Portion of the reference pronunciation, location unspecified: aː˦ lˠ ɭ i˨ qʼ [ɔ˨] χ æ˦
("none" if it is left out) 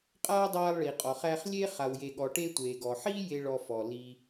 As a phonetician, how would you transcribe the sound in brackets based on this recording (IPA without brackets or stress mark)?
ɔ˨